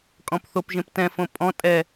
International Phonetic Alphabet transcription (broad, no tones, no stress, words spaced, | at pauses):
kʼɔ̃pθopʒẽp tɛ̃fõ pʼɔ̃ tʼɛ